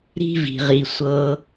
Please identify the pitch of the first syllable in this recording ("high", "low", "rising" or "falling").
high